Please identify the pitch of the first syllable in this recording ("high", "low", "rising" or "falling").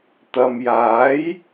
low